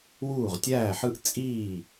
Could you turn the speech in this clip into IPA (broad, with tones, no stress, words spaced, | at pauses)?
wuː˥˩ʁtʲæː˥˩ħɯ˥˧ʔ t͡sʼiː˥˩